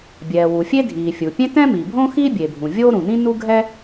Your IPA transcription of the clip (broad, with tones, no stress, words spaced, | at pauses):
bʲɛː˩wu˩fʲe˥dʱiː˩ fʲu˩pʲẽ˥ tɛ̃˥miː˩bʱõː˥ xi˥bʲe˩bʱũ˩ vʲo˥ɾũ˩nĩ˥ nu˥ ɡʱɛ˥